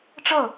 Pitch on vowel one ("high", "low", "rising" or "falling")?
falling